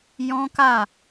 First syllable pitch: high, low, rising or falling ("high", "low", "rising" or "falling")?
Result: high